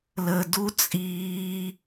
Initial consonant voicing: voiced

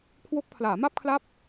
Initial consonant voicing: voiceless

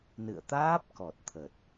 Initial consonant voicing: voiced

